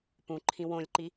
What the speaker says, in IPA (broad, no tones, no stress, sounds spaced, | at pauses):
p ũ ǃʰ ĩ w õ lʲ ǃ i